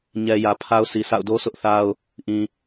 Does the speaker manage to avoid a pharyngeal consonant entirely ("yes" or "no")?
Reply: yes